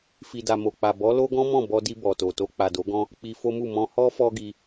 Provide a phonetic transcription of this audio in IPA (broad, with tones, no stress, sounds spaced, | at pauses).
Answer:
f i˨ d a˨ m o˨ k͡p a˨ b ɔ˨˦ l o˦ ɡ ɔ̃˦ m ɔ̃˦˨ b ɔ˧ d i˧ b ɔ˨ t o˨ t o˧ k͡p a˨ d o˨˦ ɡ ɔ̃˦ | k͡p i˧ f o˦ m u˦˨ m ɔ̃˧ h ɔ˦ f ɔ˦ ɡ i˧